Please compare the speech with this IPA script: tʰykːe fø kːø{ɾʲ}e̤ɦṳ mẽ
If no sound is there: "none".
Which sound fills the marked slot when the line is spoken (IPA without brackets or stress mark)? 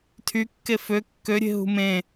ɾʲ